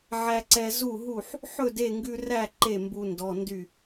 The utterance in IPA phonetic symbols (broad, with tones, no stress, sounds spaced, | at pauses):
ʕ æ˧ ǀ ɛ˧ z u˥˩ ɦ u˥˩ ħ | ħ ɵ˥˩ d e˥˩ ŋ ɡ ʉ˧ r æ˥˩ ǃ e˥˩ m b u˧ n d ɔ˩˧˩ n d y˥˩